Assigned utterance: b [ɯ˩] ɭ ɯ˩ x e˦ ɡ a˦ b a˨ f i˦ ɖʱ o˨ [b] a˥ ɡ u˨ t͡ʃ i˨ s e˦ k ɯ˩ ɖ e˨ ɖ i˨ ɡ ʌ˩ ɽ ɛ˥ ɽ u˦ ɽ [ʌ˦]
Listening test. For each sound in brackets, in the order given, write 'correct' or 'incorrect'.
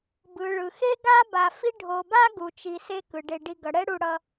correct, correct, correct

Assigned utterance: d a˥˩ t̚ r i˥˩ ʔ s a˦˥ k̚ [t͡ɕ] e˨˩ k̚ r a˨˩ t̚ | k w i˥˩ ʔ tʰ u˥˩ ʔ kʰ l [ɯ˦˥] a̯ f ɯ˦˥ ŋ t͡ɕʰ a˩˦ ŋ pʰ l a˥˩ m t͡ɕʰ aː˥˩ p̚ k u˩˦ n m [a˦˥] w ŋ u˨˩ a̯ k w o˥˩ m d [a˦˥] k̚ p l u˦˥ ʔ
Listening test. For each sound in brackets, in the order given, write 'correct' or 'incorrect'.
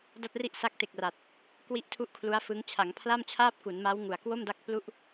incorrect, incorrect, correct, correct

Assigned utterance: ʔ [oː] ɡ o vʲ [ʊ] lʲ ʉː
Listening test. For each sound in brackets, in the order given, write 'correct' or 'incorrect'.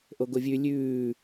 incorrect, incorrect

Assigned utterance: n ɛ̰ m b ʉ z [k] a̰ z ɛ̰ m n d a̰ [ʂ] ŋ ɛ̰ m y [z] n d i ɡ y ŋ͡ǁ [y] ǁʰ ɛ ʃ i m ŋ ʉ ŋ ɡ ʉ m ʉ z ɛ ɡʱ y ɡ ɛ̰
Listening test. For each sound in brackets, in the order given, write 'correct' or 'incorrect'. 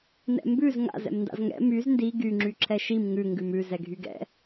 incorrect, incorrect, correct, correct

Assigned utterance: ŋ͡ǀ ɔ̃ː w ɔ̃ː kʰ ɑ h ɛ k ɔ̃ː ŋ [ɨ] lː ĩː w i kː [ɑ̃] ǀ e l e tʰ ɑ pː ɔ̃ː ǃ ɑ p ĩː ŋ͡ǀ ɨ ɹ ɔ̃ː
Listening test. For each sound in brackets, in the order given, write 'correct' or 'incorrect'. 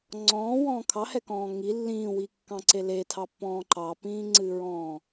incorrect, correct

